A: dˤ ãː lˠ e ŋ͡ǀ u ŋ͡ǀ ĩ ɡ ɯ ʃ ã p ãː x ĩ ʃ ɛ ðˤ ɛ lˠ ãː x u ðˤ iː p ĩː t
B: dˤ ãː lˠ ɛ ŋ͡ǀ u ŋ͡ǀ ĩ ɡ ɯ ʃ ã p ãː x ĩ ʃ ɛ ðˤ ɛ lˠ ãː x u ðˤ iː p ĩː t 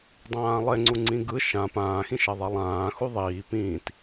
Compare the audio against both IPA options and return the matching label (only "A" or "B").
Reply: A